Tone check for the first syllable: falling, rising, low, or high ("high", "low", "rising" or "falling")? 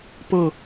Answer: falling